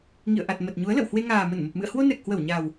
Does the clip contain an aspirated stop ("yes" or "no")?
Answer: no